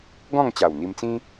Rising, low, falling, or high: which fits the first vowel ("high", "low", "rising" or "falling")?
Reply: falling